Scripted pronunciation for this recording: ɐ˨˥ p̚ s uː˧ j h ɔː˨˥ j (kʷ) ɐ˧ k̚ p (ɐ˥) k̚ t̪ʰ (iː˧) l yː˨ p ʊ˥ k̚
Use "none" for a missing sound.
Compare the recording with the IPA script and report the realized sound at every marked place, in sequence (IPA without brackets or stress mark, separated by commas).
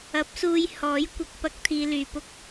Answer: kʷ, ɐ˥, iː˧